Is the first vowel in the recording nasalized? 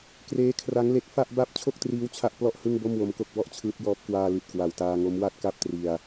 no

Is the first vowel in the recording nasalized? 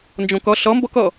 yes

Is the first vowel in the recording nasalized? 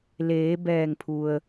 no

